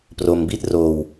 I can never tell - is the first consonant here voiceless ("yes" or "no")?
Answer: yes